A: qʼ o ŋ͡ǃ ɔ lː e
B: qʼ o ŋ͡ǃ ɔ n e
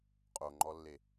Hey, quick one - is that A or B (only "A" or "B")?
A